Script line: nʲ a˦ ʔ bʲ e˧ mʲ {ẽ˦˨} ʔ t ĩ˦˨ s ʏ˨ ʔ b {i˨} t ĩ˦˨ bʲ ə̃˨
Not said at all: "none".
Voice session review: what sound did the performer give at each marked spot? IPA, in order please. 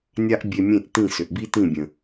ẽ˦˨, i˦

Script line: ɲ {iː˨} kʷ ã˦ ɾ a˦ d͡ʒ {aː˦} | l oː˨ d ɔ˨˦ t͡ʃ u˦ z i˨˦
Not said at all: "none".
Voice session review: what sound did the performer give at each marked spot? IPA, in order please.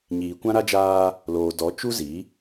iː˨, aː˦

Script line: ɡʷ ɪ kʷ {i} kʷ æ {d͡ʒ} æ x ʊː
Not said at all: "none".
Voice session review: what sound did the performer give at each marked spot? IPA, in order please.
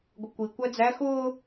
i, d͡z

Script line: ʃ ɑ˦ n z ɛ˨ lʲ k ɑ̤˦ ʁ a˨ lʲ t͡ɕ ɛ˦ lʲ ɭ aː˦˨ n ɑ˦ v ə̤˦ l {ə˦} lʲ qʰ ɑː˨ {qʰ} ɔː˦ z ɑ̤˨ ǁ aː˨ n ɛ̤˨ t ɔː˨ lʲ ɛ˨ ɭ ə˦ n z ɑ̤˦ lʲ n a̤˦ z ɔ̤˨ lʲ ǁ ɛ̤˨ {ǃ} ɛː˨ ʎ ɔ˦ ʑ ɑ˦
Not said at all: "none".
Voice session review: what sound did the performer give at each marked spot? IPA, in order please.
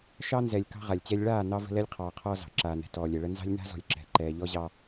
ɛ˦, qʰ, ǃ

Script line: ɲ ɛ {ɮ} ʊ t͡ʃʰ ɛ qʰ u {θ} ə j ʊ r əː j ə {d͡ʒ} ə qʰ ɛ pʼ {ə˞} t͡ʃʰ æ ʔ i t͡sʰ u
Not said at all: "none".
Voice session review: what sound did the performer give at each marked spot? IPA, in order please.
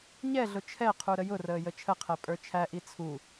ɮ, ɾ, t͡ʃʰ, ə˞

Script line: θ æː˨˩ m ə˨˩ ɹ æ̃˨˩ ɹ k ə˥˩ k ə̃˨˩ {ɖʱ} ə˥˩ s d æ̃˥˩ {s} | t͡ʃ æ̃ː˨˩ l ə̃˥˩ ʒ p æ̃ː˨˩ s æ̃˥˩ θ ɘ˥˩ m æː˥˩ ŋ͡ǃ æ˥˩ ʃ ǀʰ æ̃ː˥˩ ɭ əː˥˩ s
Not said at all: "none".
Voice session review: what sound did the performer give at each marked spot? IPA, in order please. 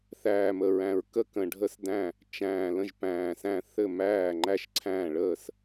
ɖʱ, none

